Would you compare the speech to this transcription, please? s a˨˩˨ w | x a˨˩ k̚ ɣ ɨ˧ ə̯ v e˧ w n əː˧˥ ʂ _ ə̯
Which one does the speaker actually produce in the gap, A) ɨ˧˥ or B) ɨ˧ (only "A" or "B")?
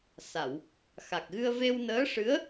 A